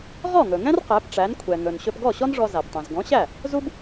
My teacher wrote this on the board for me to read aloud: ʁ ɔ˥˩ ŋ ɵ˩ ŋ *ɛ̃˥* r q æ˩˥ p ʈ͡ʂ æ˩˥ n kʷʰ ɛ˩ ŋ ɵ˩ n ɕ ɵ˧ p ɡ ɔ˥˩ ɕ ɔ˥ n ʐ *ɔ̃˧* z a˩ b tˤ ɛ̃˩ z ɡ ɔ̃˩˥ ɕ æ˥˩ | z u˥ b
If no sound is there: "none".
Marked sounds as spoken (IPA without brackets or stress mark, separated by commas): ɛ̃˥, ɔ˧